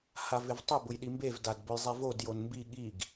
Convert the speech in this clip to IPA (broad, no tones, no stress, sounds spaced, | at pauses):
h a v ɪ v tˤ ʊ b ʊ j ɗ i m b e v d a d b ʊ j zˤ e v o d j o n m b i ɠ i ɡ